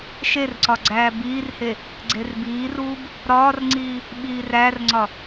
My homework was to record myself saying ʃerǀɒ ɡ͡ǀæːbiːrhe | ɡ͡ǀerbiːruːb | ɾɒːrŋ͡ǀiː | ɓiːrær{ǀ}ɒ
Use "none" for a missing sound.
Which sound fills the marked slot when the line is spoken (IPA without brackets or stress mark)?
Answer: ŋ͡ǀ